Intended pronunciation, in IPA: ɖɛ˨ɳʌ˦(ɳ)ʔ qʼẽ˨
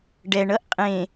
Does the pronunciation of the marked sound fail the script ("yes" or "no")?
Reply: yes